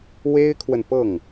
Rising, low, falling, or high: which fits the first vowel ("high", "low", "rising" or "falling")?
high